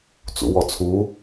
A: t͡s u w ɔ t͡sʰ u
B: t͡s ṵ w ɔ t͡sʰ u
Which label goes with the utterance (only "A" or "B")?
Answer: B